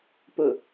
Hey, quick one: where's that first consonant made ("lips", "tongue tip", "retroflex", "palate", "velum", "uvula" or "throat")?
lips